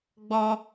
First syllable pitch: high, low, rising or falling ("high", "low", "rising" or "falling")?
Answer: high